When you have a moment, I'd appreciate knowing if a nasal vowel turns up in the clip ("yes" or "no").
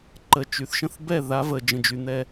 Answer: yes